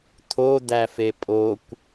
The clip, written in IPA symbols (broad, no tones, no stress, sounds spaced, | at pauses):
t̪ʰ o d̪ æ f e pʼ o kʷ